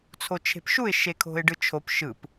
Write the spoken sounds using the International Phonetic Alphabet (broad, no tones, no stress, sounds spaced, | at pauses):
t͡sʰ o t͡ʃʰ e̤ p ʃ u ɪ̯ ʃ e kʰ o̤ ɪ̯ ɖ ɯ t͡ʃʰ o p ʃ ɯ p